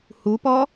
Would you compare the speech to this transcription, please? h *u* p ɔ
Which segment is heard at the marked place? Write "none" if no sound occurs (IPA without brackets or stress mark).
u